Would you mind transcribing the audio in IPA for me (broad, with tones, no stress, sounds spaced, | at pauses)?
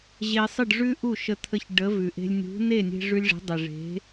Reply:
ʑ e˧ sˤ ɨ˥˩ ɖ ʐ ʉ˥ ʔ u˥˩ ʃ ə˧ t̪ʰ ə˧ ç ɖ ə˩˥ v ʉ˩ ʔ e̤˧ lʲ nʲ ṳ˩˥ n e˥˩ nʲ e̤˧ ʐ ʉ˧ lʲ ʐ e̤˩˥ dˤ e˩ ʐ e̤˩˥